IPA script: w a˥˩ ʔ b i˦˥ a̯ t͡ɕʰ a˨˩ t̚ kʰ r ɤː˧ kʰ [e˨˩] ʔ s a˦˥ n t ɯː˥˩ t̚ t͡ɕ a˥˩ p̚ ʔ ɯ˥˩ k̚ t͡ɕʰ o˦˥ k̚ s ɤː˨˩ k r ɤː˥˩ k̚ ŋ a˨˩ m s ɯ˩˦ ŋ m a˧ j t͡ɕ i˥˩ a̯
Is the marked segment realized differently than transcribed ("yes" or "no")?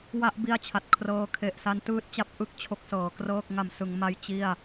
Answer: no